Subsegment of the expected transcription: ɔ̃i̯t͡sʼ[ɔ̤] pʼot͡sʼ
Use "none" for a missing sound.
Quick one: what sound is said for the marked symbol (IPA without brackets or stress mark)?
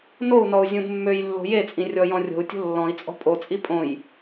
ɔ̤